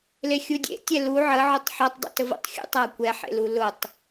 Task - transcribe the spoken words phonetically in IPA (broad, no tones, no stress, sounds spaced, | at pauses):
l e xʲ u dʲ ḛ tʲ ɛ l u ʕ ə ʕ ʊ tˤ ħ ɔ tˤ dˤ ṵ t ə v ṵ tˤ xʲ ṵ tˤ a kʷ ɛ ħ ḛ l u l ʊ tˤ